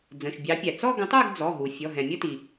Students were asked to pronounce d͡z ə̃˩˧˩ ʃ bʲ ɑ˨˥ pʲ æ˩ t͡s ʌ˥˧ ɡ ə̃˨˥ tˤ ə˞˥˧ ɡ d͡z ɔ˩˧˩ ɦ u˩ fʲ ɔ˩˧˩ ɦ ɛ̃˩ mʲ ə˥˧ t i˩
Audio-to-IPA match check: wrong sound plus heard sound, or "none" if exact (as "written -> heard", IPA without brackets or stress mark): ʌ˥˧ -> ɔ˥˧